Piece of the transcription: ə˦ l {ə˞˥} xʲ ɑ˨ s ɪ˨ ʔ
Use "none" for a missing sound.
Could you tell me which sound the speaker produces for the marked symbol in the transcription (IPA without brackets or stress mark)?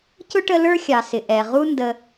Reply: ə˞˥